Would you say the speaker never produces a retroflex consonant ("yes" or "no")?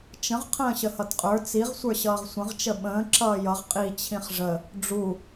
no